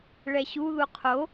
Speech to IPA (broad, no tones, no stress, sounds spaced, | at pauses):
ɭ ɛ ɕ u ð u qʰ o